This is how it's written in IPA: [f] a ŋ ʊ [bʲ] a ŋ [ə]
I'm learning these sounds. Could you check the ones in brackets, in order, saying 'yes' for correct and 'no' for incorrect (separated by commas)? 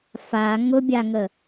yes, yes, yes